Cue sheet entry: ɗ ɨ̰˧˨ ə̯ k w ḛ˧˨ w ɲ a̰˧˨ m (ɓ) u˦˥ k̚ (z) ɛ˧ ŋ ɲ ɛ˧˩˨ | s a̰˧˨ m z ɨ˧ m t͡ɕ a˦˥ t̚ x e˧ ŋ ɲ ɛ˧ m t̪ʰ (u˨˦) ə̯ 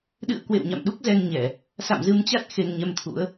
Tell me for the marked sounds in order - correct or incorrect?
incorrect: ɗ, correct, incorrect: ṵ˧˥

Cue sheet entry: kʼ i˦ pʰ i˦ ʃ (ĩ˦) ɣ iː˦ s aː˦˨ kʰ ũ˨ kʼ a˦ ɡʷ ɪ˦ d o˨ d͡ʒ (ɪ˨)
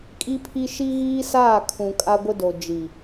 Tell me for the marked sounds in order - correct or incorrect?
incorrect: i˦, incorrect: i˨

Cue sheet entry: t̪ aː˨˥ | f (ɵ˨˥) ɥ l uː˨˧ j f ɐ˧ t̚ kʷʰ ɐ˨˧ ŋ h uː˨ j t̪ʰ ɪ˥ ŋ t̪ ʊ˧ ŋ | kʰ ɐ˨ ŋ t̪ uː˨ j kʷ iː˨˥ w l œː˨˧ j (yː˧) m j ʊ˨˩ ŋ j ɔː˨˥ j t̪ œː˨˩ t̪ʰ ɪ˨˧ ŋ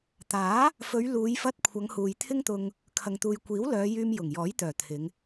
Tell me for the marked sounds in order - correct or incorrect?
incorrect: ɵ˨˧, correct

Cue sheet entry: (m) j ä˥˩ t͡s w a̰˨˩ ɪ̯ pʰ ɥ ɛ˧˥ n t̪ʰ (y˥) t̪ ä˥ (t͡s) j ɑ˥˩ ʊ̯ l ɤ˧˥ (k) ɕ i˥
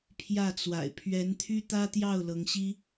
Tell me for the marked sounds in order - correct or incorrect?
incorrect: pʰ, correct, incorrect: t̪, incorrect: ŋ

